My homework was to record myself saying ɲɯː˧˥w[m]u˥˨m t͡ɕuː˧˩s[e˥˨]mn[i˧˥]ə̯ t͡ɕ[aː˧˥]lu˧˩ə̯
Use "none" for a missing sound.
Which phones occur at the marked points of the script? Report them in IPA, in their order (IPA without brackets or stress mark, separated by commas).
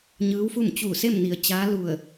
f, e˥˨, i˩˧, aː˧˥